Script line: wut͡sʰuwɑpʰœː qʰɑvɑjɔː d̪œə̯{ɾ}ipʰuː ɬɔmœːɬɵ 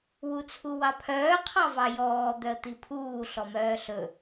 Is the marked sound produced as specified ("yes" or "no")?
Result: no